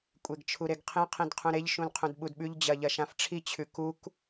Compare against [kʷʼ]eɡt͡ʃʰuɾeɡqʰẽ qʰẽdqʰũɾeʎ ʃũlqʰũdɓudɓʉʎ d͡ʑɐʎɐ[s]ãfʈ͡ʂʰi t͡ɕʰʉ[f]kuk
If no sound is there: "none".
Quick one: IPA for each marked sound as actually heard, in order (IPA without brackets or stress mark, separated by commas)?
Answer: kʷʼ, ʃ, none